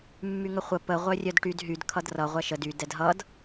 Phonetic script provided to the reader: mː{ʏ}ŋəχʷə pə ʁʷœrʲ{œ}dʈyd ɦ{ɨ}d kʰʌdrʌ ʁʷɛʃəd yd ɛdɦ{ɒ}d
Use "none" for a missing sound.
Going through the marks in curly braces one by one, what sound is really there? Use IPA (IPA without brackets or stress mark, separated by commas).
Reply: y, œ, y, ʌ